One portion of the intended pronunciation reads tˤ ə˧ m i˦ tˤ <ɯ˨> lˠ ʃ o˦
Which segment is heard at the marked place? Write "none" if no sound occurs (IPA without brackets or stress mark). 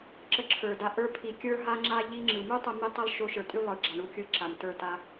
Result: ɯ˦